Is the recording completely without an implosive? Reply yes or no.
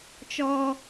yes